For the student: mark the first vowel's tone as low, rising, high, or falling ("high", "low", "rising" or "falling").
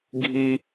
high